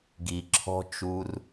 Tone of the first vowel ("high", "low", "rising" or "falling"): low